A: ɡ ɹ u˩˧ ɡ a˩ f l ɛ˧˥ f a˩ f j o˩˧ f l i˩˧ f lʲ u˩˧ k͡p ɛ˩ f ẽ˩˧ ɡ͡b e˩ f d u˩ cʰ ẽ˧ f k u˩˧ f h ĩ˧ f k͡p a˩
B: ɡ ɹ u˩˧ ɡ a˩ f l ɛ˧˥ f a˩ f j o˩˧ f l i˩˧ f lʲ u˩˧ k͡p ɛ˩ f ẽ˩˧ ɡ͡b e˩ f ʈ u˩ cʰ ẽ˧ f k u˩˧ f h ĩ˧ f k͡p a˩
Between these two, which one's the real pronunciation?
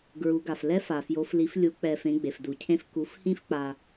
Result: A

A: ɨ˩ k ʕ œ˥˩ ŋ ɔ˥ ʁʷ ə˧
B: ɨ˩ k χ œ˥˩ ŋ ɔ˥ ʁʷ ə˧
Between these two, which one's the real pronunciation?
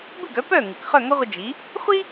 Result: B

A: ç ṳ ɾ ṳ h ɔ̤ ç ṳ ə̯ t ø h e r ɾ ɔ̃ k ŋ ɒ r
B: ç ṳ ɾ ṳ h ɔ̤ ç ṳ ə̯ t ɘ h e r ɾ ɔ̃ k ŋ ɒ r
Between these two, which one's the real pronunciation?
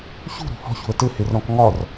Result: B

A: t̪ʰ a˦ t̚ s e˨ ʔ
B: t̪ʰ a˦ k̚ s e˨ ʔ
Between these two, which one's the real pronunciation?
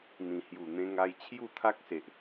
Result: B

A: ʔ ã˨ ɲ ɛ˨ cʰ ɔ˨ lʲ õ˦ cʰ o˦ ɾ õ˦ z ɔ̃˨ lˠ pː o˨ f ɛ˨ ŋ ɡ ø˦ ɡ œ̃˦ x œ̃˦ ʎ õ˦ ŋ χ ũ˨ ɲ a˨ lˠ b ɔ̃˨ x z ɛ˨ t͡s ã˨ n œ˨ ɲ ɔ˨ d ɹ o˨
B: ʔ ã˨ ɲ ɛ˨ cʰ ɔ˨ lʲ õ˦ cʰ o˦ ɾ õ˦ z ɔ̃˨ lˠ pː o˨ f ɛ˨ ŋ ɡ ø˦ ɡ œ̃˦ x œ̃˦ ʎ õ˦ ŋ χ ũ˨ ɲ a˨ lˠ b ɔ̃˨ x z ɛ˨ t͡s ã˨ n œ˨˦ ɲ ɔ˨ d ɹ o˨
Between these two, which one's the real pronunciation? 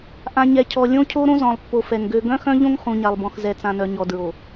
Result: A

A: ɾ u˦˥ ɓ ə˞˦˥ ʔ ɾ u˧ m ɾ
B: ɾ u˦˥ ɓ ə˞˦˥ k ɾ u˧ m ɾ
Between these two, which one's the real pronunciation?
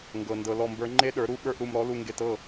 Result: A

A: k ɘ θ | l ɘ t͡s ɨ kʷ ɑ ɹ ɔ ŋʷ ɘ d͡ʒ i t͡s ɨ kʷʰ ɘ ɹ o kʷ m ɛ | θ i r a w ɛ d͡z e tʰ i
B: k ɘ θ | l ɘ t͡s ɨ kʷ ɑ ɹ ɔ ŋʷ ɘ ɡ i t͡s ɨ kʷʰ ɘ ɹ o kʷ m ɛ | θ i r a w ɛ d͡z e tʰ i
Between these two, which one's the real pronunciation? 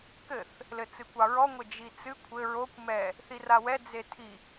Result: A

